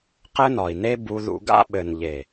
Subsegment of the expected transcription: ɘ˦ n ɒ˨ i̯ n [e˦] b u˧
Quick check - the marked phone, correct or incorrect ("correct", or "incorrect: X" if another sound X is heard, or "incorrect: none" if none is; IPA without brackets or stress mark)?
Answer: correct